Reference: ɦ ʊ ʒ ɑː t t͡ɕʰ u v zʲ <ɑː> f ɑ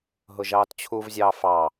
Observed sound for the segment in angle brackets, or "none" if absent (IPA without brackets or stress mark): ɑː